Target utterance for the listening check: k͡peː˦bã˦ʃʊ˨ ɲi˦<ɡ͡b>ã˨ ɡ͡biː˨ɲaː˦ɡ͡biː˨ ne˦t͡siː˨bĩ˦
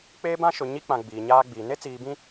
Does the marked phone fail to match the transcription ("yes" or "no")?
yes